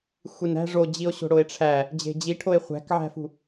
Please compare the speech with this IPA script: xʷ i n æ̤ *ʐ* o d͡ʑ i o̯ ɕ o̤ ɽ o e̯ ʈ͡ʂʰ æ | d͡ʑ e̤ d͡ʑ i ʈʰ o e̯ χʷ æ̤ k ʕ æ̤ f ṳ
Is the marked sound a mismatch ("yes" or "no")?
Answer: no